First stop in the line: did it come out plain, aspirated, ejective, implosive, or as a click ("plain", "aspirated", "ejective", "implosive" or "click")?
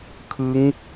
aspirated